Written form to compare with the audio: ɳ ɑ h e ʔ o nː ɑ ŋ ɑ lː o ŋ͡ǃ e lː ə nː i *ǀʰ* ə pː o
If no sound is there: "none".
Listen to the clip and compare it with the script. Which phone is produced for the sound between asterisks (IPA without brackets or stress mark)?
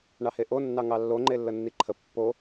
ǃʰ